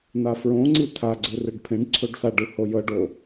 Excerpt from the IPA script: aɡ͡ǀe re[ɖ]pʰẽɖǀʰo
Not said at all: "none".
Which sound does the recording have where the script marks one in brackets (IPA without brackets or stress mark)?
ɖ